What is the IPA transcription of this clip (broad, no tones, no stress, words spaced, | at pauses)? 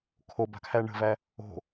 kʰoba̤kʰæ ɳə̤væ | o̤